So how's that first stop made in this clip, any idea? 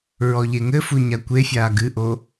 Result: plain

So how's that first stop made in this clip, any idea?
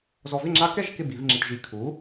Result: click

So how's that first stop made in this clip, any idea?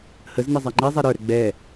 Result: click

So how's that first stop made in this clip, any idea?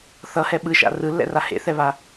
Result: implosive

